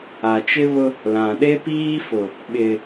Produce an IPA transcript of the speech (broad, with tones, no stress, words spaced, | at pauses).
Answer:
a˨t͡ʃɪ˦βʊ˦ | lã˨ɗe˦piː˦fʊ˨ | ɓɪ˨